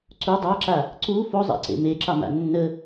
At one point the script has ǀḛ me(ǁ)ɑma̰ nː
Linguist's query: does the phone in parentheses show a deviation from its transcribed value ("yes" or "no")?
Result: no